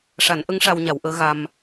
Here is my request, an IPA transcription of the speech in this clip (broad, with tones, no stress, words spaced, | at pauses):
ʂa˨˩˦nʔə˧˥ŋ ʂa˧wɲa˨˩˦wʔəː˧˥ ɣa˧m